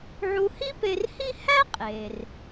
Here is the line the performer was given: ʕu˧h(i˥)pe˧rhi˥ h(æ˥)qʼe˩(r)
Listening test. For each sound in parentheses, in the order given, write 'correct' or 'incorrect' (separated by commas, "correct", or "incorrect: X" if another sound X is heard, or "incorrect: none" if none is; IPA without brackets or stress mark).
correct, correct, correct